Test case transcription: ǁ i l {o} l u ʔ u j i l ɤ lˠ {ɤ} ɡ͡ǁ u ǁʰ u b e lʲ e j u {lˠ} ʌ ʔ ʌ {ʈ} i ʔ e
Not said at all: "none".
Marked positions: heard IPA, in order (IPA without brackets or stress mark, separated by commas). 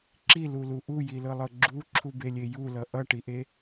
u, ɤ, l, ʈ